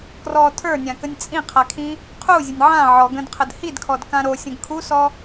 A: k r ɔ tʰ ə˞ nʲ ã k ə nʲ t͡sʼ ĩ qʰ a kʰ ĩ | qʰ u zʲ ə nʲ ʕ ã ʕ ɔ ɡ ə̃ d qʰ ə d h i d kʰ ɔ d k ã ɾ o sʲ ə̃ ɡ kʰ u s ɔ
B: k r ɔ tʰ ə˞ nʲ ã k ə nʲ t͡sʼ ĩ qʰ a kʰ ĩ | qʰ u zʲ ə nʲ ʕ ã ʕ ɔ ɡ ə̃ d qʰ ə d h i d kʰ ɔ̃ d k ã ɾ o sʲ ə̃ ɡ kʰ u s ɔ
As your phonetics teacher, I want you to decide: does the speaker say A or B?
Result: A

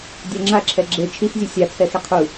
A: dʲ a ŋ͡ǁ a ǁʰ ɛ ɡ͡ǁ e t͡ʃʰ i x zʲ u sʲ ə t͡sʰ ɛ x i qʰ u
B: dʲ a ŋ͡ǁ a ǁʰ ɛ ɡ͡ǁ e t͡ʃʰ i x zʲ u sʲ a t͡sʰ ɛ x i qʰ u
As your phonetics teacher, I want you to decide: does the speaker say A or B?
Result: B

